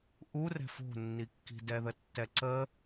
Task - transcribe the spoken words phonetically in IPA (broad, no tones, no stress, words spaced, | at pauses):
ʔurɛ̤f o̤nːikːi̤ dɛðətːɛǀə